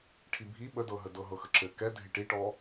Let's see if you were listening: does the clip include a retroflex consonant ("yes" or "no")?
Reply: yes